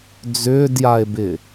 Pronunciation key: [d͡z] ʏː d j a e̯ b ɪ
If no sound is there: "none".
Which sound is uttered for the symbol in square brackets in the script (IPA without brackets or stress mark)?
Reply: d͡z